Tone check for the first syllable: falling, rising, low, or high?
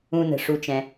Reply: low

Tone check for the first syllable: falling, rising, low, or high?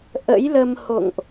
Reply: rising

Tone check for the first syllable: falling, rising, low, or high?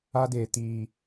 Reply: high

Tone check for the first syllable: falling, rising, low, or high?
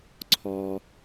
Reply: low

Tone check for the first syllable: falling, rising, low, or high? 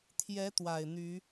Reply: rising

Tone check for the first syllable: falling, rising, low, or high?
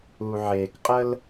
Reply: low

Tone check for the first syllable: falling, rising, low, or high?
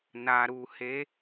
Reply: low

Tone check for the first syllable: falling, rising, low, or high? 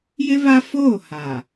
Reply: high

